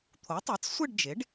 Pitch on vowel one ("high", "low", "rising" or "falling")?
rising